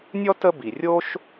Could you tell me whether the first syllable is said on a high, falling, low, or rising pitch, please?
high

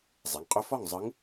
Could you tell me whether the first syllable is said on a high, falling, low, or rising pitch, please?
rising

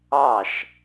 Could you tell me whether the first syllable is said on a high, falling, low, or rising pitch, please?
falling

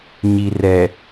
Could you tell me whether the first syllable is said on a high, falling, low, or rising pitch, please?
low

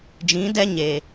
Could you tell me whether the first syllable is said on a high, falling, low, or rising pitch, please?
rising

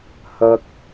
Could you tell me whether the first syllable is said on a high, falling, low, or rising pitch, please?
high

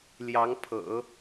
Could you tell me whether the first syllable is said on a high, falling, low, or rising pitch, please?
rising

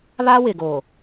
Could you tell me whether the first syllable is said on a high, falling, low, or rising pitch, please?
high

